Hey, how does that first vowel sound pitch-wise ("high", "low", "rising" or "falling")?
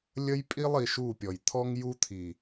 high